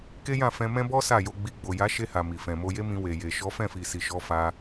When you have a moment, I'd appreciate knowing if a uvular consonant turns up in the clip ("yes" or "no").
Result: no